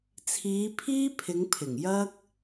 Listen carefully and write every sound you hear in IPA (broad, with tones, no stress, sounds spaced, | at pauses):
t͡sʰ iː˨˧ pʰ iː˥ pʰ ɪ˨˧ ŋ pʰ ɪ˨˩ ŋ j ɐ˥ k̚